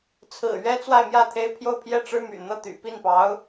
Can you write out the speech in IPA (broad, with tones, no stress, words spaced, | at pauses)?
t͡sʰɹ̩˨˩ɥɛ˥ t͡swa˥˧ɪ̯mjä˥˩t̪ʰe˥ɪ̯ pʰjo˥˧ʊ̯pʰjɛ˥˩ʈ͡ʂɻ̩˥ my̰˨˩n̪ɤ˥˩ t̪y̰˨˩pi˥˩npɑ˧˥ʊ̯